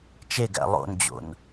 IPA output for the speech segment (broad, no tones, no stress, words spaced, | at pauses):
t͡ʃeɡæ̰ lˠo̰nd͡ʑo̰n